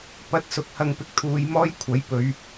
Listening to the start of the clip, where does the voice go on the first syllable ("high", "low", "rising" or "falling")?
rising